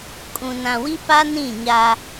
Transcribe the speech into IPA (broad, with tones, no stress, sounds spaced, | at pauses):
kʼ ũ˨ n ã˨ w i˦ p a˦ n ĩ˦˨ ɲ a˦